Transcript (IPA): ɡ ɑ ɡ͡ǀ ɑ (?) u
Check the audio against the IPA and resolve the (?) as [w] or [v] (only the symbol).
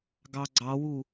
w